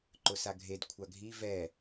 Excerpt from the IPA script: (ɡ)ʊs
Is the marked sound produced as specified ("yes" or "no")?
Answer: no